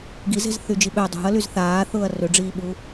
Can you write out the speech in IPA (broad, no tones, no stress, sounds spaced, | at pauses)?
ɡ i z e̤ z θ y d͡ʒ i ɓ ø dˤ ṳ ɐ̯ l y z θ aː θ ʊː ɐ̯ r ø ɖ͡ʐ iː ɓ u